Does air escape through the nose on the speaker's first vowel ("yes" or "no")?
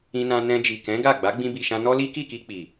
yes